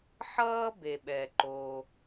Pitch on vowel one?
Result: high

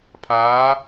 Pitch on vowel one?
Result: rising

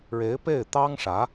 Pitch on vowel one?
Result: rising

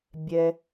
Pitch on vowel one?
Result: high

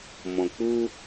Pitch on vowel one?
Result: low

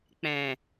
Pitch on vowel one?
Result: low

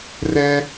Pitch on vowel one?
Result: high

